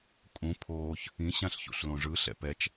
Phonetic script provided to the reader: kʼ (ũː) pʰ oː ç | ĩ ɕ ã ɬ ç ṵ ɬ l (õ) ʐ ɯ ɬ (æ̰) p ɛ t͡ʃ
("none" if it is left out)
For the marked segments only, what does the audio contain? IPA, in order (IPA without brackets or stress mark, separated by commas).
ũ, õ, ɛ̰